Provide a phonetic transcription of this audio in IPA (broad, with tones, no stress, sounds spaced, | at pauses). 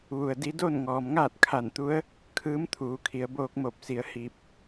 ʋ u˩ ə̯ d i˧˥ d o˥˨ n ŋ ɔː˩ m ŋ aː˥˨ t̚ kʰ a˧˩ n t̪ u˧˥ ə̯ | kʰ ɯː˧˥ m t̪ʰ uː˩˧ kʰ i˩˧ ə̯ b oː˧ k̚ m o˧˩ p̚ s i˩˧ ə̯ h i˧ p̚